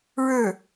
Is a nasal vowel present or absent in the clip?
absent